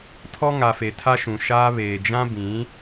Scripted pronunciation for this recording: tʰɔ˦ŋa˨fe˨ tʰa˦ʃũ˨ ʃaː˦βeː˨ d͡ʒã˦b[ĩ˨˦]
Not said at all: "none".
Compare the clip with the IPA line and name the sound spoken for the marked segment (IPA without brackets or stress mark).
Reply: ĩ˨˦